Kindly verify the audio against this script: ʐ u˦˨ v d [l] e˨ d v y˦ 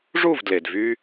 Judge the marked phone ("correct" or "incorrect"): correct